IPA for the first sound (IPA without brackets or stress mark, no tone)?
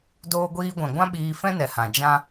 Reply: d